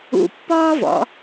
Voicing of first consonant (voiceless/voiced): voiceless